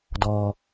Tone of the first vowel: high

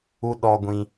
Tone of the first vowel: high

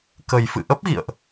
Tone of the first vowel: low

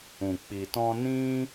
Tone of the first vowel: low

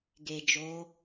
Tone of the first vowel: low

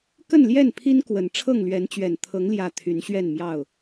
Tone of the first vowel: falling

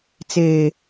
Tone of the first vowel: low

